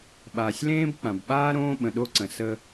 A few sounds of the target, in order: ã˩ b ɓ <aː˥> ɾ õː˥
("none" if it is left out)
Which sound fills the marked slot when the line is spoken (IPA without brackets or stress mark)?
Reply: aː˥